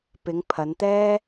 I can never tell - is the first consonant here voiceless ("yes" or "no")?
yes